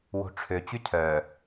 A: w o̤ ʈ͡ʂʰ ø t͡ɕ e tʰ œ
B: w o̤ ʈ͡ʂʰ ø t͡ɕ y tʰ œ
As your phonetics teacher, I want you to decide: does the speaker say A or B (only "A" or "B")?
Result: B